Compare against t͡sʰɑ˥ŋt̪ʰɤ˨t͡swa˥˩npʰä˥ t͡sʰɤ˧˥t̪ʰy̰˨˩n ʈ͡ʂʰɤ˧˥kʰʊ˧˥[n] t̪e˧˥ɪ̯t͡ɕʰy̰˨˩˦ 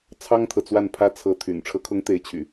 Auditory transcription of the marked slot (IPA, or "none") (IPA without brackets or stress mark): ŋ